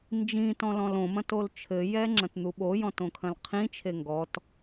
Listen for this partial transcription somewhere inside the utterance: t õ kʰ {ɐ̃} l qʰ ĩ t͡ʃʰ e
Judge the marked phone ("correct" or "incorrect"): correct